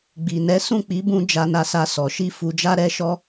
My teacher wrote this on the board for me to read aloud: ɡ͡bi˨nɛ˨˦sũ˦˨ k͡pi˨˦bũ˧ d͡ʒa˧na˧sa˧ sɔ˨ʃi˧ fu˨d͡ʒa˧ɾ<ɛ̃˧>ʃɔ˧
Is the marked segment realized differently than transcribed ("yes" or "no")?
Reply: yes